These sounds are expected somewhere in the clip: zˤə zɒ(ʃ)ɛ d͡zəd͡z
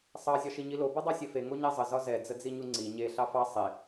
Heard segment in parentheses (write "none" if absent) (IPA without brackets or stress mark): z